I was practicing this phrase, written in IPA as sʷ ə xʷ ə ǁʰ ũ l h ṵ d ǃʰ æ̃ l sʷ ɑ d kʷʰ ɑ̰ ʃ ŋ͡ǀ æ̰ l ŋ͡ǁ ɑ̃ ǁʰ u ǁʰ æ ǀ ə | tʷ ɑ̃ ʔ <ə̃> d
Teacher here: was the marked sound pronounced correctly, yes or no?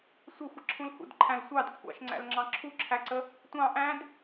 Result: no